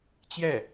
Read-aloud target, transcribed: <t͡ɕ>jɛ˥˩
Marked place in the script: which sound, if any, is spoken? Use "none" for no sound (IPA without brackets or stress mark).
t͡ɕ